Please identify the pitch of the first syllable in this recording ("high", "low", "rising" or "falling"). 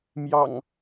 low